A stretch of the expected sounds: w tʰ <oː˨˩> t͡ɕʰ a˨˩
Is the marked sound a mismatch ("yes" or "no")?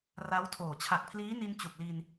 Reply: no